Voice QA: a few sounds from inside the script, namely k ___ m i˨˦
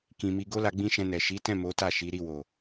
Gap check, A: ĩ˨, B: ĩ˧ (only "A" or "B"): A